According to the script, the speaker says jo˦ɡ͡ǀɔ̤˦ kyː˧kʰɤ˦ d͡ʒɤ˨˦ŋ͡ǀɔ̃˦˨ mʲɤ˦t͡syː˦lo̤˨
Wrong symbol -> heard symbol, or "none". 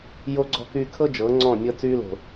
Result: none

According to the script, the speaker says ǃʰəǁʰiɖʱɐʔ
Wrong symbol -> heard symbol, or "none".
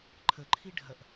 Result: ǁʰ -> ǃʰ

